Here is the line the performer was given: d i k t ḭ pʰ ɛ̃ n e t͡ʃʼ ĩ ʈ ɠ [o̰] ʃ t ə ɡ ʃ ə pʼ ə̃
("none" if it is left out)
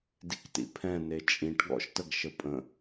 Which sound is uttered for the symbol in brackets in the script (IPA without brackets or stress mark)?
ɔ̰